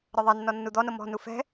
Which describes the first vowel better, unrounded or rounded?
unrounded